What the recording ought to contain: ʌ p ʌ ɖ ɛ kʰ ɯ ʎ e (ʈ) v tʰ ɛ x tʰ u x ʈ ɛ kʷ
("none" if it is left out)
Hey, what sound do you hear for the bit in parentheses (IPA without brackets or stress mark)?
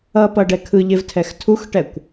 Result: none